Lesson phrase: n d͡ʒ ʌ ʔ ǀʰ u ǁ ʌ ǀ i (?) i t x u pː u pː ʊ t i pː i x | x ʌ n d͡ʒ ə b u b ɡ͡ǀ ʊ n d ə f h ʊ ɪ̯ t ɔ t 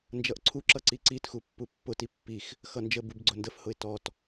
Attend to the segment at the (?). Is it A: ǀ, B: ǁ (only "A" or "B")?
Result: A